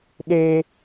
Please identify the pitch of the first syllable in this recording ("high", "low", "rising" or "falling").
high